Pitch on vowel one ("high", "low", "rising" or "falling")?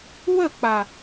falling